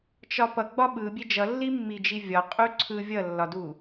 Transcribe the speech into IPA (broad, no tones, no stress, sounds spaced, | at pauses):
t͡ʃ ɒ p ʌ ɡ͡b ɒ ɓ ɯ bʲ e d͡ʒ ʌ lː i mː i d͡ʒ i vʲ ɒ qʼ u ǀʰ ɯ vʲ ʌ lː ɒ d u